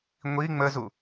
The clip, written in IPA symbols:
ŋʷ i ŋ͡m ə z u

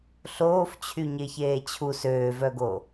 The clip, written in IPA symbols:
ɬ oː f t͡ɕʰ y ɲ e ç eː t͡ɕʰ u s øː v œ ɡ o

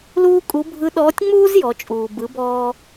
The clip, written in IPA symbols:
l uː˥ kʼ u˧˥ bʱ ɯ˧˥ ɗ ɔː˧˥ tʲ ŋ͡m uː˥ z j ɔ˩˧ t͡ʃʼ uː˩ b ɯ˩˧ b ɔː˧

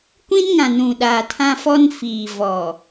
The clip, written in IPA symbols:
kʷ ĩ˦ n ŋ ã˨ n ũ˨ ɗ aː˨ tʰ ã˦ f ɔ˦ n f iː˨ v ɔ˨

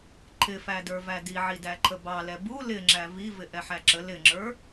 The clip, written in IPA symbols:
ǃʰ ɪ f æ d ə˞ v æ d i ʕ i d æ ǃʰ ə b ɑ l ɛ b u l ɪ ŋ͡ǁ æ v i v ɪ ʔ ɛ ħ æ ǁ ə l ɪ ŋ͡ǁ ə˞

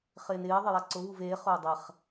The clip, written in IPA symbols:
χ ɪː n ɪː ðˤ ɪ j a ǀ ʊ β u v eː χ ʊː dˤ ɛ χ

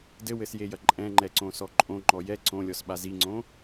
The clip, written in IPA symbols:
d ɘ w ɘ s j e j ɐ ǃʼ ɛ̃ ŋ͡ǃ ɛ ǀ õ s ɔ ǃʼ õ ŋ͡ǃ ɔ j ɛ ǀ õ lʲ ɔ s ɓ a z i ŋ͡ǀ õ

